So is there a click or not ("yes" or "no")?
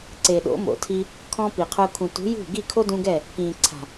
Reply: yes